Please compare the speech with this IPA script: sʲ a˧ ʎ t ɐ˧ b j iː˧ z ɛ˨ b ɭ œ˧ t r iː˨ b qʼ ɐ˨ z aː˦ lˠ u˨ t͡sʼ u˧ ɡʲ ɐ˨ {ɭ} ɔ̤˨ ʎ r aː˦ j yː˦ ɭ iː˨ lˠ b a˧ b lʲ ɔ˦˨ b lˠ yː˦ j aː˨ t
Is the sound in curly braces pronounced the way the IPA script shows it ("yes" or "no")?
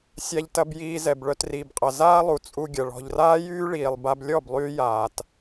yes